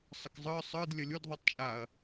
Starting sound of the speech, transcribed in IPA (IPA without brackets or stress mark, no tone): sˤ